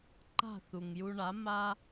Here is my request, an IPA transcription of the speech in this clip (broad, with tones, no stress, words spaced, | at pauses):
ǃa̤˥˩θu˩ŋju˧ ɳa˩˥ ma˥